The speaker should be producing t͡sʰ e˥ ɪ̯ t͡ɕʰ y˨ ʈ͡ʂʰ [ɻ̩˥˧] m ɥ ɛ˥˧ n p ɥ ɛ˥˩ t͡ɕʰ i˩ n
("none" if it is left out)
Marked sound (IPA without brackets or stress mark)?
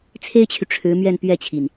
ɻ̩˧˥